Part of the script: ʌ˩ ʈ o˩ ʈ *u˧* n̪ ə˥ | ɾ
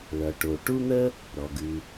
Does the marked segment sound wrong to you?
yes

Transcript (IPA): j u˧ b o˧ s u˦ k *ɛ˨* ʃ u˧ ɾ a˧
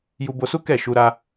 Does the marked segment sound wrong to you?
yes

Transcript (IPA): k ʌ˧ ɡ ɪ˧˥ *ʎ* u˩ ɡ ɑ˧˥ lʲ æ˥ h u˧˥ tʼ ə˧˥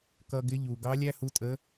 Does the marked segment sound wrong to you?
no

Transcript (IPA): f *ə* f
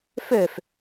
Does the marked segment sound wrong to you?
yes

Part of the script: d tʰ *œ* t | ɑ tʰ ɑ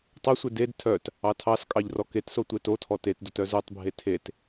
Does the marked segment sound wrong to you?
no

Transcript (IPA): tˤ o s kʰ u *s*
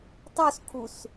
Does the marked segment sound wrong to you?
no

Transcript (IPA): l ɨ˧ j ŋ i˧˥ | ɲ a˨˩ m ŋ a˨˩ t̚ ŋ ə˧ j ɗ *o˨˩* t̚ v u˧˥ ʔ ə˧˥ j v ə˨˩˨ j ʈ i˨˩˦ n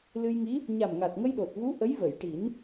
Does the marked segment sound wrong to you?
no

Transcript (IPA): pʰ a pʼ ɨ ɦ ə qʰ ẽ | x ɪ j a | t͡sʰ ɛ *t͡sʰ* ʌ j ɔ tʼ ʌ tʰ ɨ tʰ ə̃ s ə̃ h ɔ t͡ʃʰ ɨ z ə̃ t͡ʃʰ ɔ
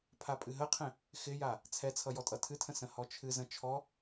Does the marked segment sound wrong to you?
no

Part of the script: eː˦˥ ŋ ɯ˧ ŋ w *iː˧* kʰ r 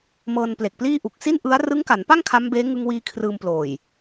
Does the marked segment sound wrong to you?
no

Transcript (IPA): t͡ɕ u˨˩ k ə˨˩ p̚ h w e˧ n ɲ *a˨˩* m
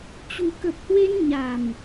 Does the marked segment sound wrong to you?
no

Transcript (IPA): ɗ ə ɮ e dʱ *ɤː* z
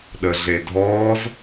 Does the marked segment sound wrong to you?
yes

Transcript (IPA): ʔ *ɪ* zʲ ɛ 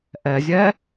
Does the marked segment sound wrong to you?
yes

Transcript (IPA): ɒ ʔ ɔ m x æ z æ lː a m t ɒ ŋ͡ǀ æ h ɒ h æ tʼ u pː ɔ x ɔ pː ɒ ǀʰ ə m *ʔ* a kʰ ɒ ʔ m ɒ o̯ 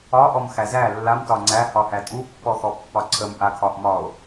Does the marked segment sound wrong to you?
no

